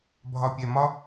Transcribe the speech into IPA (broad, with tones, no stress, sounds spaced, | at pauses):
bʱ ɒ˨ pʲ ɛ˨ m ɒ˦